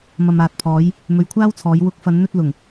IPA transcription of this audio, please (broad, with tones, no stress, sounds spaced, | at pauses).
m ɐ˨ m aː˨ t̚ pʰ ɔː˨˧ j | m ɵ˨ ɥ kʷʰ aː˥ w t͡sʰ ɔː˨˧ j w ʊ˨˥ k̚ f ɐ˨˧ n n̪ ɵ˧ t̚ l ʊ˨˩ ŋ